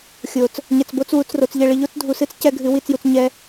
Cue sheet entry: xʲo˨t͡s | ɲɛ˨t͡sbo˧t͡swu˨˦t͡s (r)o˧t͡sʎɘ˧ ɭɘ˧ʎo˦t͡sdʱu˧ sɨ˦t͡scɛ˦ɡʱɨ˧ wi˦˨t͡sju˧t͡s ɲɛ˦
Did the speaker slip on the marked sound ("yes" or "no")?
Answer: no